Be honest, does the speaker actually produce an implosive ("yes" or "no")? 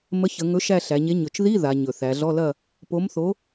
no